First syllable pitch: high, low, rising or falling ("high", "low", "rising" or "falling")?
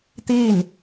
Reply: falling